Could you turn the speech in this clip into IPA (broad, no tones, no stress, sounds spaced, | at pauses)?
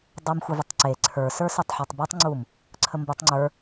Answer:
dˤ u m xʷ ɪ v ə tˤ ǀ e ǀʰ ə˞ s ə˞ s ʊ tˤ ħ e tˤ b u tˤ ŋ͡ǀ u m | ǀʰ ə m b u tˤ ŋ͡ǀ ə˞